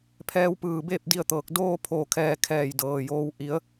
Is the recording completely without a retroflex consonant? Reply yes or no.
yes